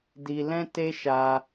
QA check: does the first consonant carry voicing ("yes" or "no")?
yes